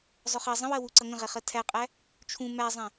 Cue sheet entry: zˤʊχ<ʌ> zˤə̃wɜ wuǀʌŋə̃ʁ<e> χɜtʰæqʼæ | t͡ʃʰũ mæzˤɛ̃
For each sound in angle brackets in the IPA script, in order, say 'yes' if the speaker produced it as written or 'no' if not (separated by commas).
yes, no